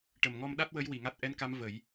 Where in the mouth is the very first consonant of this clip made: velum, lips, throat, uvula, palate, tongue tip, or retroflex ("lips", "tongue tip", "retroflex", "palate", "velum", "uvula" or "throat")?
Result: retroflex